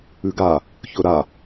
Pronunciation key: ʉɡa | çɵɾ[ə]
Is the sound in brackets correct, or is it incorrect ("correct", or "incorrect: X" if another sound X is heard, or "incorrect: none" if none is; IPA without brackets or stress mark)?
incorrect: a